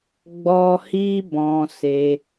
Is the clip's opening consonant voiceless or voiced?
voiced